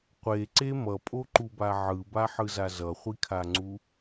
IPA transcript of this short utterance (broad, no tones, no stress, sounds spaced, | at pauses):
qʷ e ǀ e m ʌ pʼ o ǃ u b a ʕ ɯ b a ħ ɯ z a z ʌ χʷ i kʰ a ŋ͡ǀ u